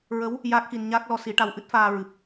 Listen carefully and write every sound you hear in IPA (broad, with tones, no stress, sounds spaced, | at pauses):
ɹ ə˧˥ w | j aː˦˥ k̚ x i˧ n ɲ aː˦˥ k̚ l ɔ˧˥ s i˨˩˦ ʈ a˧ w ʔ ɨ˦˥ t̚ f aː˧ ɹ ɨ˨˩ p̚